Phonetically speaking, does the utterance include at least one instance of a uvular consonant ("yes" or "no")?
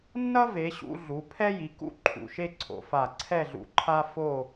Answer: no